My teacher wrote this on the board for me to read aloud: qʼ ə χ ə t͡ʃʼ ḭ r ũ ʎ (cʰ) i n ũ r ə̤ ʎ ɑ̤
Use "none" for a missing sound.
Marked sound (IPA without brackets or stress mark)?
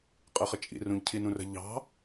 cʰ